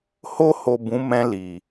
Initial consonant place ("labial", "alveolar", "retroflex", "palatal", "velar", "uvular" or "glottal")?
glottal